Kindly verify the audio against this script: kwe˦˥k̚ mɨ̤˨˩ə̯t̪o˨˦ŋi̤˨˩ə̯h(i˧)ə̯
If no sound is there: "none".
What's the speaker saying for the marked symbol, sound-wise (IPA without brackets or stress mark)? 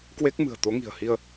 i˧